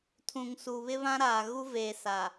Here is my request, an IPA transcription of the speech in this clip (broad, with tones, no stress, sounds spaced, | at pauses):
tʰ ũ˨ ŋ s u˨ β ɪ˦ β ã˦ ɾ aː˨ ɣ u˦ v eː˨ s a˨